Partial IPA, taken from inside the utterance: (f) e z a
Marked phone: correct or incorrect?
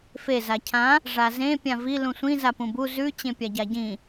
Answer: correct